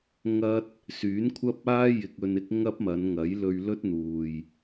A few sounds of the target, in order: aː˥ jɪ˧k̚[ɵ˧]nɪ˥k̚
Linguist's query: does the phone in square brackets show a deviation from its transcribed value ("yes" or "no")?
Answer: no